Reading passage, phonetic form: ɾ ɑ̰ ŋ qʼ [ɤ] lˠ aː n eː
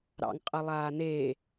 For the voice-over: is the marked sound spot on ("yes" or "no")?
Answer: yes